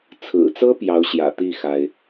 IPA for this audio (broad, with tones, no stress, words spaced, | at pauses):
t͡sʰɹ̩˨˩t͡sɤ˥ pjɑ˧˥ʊ̯ɕjä̰˨˩t̪i˥˩ xa˥ɪ̯